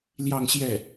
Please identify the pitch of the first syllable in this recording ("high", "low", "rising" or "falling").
falling